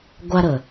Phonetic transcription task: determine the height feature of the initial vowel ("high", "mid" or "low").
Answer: low